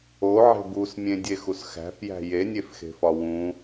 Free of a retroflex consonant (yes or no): yes